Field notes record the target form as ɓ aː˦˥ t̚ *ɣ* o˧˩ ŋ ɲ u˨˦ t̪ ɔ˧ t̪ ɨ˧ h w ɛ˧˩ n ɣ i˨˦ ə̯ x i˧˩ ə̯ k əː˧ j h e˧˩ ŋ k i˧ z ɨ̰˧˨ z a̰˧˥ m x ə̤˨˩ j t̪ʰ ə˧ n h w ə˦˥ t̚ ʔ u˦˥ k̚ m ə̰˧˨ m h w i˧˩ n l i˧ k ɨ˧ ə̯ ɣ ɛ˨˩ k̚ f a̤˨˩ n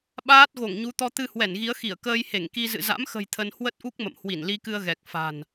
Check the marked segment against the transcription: correct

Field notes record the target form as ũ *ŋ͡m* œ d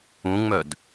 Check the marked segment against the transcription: correct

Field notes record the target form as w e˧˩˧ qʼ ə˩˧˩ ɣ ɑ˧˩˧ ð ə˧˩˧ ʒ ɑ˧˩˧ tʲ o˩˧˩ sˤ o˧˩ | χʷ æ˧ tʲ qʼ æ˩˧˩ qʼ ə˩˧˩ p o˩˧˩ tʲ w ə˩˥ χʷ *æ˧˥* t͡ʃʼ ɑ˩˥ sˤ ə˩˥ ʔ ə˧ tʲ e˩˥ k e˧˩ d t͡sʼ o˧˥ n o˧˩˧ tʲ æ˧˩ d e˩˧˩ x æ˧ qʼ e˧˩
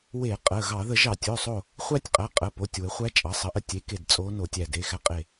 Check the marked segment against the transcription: correct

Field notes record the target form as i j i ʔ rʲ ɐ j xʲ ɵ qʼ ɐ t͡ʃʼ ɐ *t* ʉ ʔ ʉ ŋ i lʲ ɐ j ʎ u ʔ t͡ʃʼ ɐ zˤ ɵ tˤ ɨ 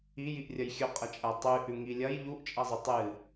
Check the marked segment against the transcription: incorrect: tˤ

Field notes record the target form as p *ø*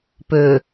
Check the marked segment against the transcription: correct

